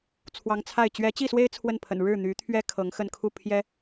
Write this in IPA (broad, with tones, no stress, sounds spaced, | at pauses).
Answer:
t͡sʰ w ɑ˧˥ ŋ t͡sʰ a˥˩ ɪ̯ t͡ɕ ɥ ɛ˧˥ t͡ɕ i˥˩ s w e˥ ɪ̯ t͡sʰ w ə˥˩ n pʰ ə̰˨˩ n ɻ ɻ̩˥˩ n̪ y˧˥ t̪ʰ ɥ ɛ˥ kʰ ɤ˧˥ ŋ x ə˥˧ n kʰ u˥˩ pʰ j ɛ˥